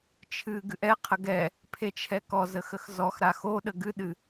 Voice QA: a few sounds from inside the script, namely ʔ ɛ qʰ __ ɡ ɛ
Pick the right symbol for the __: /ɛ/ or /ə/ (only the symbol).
ə